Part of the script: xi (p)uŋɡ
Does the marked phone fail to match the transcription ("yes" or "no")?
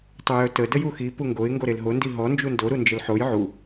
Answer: no